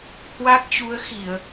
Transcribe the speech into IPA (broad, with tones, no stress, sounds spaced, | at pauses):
h w a˦˥ k̚ t͡ɕ u˨˦ ə̯ x i˧˩˨ ə̯